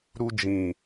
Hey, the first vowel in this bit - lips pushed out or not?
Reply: yes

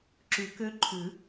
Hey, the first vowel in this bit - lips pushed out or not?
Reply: yes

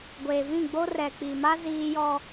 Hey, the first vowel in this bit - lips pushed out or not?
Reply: no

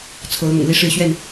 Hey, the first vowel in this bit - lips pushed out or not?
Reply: yes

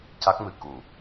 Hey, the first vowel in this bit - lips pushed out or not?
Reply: no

